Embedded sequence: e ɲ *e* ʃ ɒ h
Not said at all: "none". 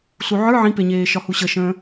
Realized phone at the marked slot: eː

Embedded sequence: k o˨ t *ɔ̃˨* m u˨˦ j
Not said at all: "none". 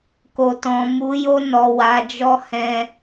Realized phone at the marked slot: ɔ̃˨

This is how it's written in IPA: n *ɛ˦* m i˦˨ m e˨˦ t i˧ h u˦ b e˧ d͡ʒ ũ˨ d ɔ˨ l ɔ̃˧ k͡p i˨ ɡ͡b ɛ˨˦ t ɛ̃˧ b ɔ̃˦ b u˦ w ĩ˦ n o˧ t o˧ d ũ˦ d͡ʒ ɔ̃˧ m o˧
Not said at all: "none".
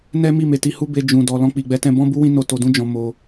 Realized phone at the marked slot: ɛ˦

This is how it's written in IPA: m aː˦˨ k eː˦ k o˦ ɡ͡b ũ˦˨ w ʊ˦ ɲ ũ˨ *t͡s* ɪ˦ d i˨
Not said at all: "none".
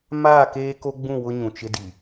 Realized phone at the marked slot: t͡ʃ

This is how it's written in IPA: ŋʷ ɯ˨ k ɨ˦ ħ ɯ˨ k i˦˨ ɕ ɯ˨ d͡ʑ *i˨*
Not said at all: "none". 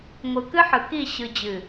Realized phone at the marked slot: ɨ˨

